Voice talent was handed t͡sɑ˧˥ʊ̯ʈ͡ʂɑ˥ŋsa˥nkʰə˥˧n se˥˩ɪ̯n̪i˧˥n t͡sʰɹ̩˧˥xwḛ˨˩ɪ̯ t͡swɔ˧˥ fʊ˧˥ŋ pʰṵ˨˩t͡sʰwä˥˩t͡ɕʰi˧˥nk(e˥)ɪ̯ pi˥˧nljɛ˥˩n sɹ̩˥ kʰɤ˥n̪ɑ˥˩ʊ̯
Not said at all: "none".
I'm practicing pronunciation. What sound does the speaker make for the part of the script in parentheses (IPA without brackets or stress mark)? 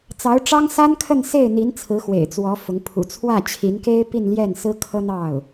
e˥